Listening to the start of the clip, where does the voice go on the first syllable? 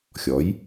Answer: rising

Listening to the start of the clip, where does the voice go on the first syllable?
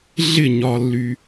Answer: falling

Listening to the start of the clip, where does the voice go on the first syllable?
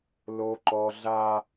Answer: high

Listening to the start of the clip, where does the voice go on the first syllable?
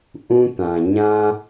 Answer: high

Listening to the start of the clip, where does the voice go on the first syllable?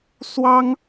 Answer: high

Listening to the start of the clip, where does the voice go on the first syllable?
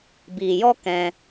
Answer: low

